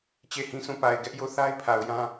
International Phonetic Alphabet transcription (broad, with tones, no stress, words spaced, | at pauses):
t͡ɕe˦˨hĩ˦ sũ˦˨pa˨ɪ̯ ɡɛ˦ʔjo˦˨θa˦ɪ̯ pʰa˨ʊ̯jã˦